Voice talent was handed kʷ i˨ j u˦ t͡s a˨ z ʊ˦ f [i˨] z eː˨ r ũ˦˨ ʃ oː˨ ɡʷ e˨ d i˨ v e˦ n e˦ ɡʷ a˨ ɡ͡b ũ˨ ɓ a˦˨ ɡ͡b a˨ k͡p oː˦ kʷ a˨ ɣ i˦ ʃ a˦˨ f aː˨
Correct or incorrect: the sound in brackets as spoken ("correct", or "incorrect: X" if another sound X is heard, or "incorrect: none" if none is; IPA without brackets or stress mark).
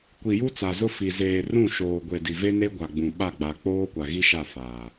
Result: correct